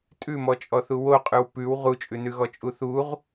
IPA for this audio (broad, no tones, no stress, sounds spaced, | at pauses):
tʼ ʉ m ɔ t͡ʃʼ ɔ θ u w o qʼ ʉ w p ʉ w ʁ u t͡ʃʼ ʉ n ʉ ɣ ɔ t͡ʃʼ u θ u ʁ